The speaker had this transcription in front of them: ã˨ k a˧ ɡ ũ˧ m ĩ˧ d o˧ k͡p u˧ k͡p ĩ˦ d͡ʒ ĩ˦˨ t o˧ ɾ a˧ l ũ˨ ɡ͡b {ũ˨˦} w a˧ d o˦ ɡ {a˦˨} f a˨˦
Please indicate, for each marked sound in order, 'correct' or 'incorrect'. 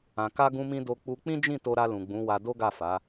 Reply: correct, correct

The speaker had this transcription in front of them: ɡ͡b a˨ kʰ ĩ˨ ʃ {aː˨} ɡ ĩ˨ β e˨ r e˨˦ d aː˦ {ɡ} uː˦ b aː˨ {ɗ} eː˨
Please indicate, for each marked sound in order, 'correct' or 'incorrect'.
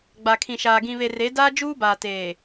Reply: correct, incorrect, incorrect

